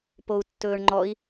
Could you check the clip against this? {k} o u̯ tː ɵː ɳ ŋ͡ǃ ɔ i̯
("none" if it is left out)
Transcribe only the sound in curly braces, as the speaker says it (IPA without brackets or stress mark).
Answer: p